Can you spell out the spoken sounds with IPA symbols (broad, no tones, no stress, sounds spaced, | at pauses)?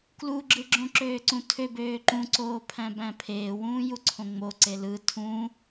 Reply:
k l u ɡ͡ǁ ɯ ɡ͡ǁ õ ǁ øː ǀ ũ tʰ ø b øː ǃ ũ ǀ oː pʰ æ̃ b æ̃ pʰ eː w ũː j u ǀʰ õ ŋ͡m o ǀ e l ɯ tʰ ũ